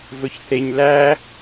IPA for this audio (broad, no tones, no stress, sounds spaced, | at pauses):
v ɵ ç θ e ɲ l æ